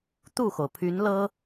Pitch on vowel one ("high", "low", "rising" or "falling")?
falling